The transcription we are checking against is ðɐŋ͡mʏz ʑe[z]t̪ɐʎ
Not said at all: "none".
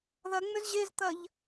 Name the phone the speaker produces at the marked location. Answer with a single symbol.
z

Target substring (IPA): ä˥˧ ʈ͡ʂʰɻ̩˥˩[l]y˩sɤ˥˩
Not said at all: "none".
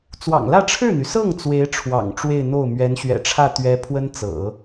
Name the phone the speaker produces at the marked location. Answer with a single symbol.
n̪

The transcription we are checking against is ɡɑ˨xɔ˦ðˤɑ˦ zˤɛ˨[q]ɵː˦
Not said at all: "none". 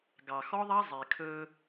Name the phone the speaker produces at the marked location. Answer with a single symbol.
kʰ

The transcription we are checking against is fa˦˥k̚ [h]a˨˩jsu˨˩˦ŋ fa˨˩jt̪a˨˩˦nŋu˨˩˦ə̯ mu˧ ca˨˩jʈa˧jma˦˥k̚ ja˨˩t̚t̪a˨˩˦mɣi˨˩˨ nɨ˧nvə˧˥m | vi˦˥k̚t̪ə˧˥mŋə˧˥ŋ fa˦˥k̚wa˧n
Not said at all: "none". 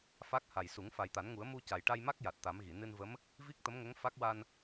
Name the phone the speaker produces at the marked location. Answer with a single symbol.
h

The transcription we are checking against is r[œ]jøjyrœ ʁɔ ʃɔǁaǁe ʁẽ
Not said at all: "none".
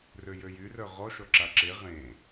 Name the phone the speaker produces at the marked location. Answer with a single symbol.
ø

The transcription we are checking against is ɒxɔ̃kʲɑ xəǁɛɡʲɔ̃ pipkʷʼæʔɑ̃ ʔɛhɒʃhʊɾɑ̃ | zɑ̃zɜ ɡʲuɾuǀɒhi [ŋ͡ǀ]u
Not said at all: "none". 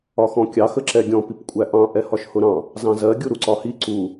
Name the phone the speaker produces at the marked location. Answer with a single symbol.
ǀ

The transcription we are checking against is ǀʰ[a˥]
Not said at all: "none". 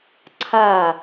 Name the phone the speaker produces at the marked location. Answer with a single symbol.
a˧˩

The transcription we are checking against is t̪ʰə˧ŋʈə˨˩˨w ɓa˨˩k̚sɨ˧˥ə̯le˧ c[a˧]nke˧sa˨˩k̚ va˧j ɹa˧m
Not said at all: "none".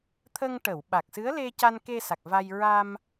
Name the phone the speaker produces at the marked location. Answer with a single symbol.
a˧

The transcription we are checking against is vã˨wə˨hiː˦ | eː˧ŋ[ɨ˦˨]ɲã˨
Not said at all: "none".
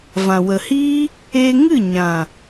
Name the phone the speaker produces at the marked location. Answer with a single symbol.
ɨ˦˨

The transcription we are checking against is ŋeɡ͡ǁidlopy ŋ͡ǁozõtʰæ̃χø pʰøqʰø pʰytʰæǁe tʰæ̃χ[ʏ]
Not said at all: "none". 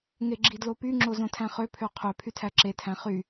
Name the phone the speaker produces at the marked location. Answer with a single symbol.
y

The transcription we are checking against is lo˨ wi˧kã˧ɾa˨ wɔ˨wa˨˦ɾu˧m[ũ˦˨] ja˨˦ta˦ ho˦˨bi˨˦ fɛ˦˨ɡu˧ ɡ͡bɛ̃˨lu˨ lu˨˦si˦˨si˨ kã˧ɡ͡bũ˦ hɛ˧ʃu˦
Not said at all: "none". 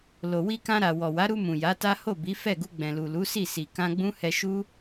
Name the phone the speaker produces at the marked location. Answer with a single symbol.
ũ˨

